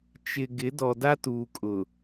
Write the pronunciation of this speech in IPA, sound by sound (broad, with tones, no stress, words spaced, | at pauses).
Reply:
t͡ʃɪ˨ ɡɪ˨˦ dɔ˨da˦ tuː˨kʼʊ˨